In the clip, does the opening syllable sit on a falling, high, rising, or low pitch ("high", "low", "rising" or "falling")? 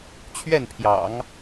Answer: falling